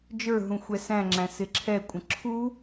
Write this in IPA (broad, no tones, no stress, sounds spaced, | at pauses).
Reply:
d͡ʒ ə˞ ɦ ũ xʷ ɛ s æ̃ ŋ͡ǁ æ̃ s ɪ ǁʰ ɛ kʷʼ ə̃ ǁʰ u